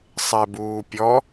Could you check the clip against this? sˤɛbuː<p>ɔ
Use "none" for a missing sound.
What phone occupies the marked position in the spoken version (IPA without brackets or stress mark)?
pʲ